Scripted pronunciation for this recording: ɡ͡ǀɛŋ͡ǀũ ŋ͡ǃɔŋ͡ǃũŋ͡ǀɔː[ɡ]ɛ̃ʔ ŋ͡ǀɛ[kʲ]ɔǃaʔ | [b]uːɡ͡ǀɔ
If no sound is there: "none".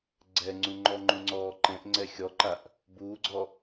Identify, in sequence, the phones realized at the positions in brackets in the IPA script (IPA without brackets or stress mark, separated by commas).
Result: ǃ, xʲ, b